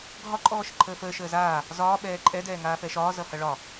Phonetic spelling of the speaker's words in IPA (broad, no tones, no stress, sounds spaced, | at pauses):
ɡʱ ɒ ǃʼ ɔː ʃ ə ǃʰ əː f əː ʃ əː z aː | z ɒː ɓ ɛː ǃʼ ɛ d ɛː ŋ aː f ɛ ʃ ɒː z ʌ h ʌ ɭ ɒ